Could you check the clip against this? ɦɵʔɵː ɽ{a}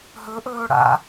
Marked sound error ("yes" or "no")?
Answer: yes